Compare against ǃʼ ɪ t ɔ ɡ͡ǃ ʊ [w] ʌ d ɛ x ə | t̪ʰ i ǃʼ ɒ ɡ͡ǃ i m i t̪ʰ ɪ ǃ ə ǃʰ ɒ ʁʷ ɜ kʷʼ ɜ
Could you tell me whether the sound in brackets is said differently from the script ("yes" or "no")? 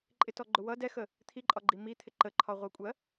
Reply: no